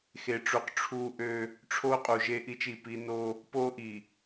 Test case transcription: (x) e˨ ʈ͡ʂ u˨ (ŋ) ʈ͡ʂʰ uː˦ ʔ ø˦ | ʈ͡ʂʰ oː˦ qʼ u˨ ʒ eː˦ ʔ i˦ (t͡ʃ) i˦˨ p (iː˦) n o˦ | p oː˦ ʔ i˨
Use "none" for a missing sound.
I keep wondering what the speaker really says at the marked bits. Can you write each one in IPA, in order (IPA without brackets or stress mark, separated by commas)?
x, q, t͡ʃ, iː˦